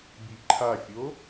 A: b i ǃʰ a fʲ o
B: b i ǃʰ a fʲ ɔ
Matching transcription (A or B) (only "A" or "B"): A